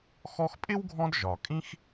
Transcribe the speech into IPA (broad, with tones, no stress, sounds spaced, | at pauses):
x ɔ˦ x pʼ ɪ˥ w ɡʱ ɔ̃˦ d ʒ ɒ˩ kʼ ĩ˥ x